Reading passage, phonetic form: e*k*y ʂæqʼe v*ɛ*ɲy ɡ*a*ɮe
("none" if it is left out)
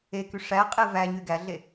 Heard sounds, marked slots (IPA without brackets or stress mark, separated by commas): k, æ, æ